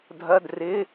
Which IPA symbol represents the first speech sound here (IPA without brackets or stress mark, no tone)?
dʱ